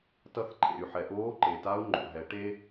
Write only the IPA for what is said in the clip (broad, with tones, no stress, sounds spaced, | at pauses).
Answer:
t ʌ˧ θ ǃʰ ḛ˩ y̯ ħ ɛ˩ ʔ oː˧˥ ǃ e˩ t a˧˥ u̯ ŋ͡ǃ o̰˩ ɦ ɛ˩˧ ʈ e˥